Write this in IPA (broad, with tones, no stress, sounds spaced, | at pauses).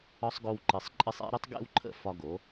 ɒ˦ sˤ ɡ o˧ w ǃ ɨ˨ sˤ ǃʼ ɨ˧ sˤ ḛ˦ ɾ ʊ˦ tˤ ɡ ḛ˦ w ǃʰ ə̰˦˨ f ɒ˦ ɡ o˨˦